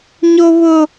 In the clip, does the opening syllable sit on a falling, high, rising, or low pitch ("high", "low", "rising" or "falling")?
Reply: high